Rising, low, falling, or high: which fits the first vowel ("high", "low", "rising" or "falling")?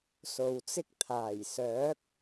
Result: low